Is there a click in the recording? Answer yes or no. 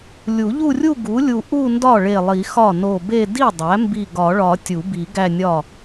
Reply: no